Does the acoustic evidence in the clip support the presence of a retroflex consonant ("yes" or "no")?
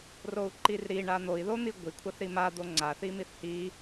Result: yes